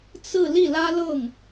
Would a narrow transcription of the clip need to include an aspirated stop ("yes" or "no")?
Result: no